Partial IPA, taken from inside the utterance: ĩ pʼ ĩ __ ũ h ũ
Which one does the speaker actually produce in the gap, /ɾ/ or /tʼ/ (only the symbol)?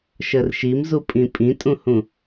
tʼ